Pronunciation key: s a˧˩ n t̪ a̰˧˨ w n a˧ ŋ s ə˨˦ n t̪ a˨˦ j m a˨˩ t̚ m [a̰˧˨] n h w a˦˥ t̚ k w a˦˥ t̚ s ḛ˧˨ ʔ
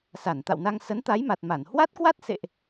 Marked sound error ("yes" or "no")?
yes